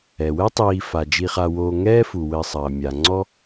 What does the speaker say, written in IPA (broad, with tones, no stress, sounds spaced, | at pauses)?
ɛ˩ w ɛ˥ tˤ iː˨ f a˩ d͡ʒ i˨ χ a˨ w oː˨ ŋ ɛː˦ f u˩ w ɘː˨ sˤ ɐː˩ mʲ a˩ ŋ͡ǀ ɔ˦